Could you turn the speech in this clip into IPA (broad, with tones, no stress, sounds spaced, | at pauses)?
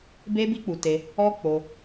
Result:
b e˦ b i˦ k͡p u˧ t e˧ | ɔ˦ k͡p o˧